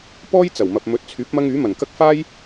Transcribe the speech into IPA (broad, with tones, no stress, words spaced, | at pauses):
pɔː˥jt͡sɐ˨˩wmɐ˨p̚ mɵ˨˥t̚t͡sʰyː˨˥p̚mɐ˧ŋ yː˨˥mɐ˨˩nkɐ˥k̚ faː˥j